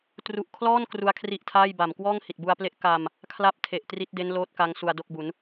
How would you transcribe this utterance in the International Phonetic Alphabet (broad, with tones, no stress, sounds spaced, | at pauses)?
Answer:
t r u˨˩ ʔ kʰ l ɔː˥˩ n k r u˦˥ a̯ kʰ r i˦˥ ʔ tʰ aː˥˩ j b a˨˩ m k w ɔː˥˩ ŋ h i˨˩ t̚ b u˧ a̯ p l e˦˥ ʔ k a˧ m | kʰ l a˥˩ p̚ tʰ e˨˩ ʔ t r i˦˥ t̚ d e˦˥ n l oː˥˩ t̚ k a˦˥ ŋ s u˧ a̯ d o˥˩ k̚ b u˩˦ n